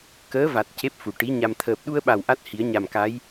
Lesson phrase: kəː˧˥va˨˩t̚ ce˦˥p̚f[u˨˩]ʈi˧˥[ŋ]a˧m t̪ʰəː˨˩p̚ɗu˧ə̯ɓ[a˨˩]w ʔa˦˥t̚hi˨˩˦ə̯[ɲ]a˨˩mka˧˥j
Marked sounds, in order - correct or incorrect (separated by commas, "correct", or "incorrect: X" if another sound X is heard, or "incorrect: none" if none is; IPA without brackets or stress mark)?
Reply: correct, incorrect: ɲ, correct, correct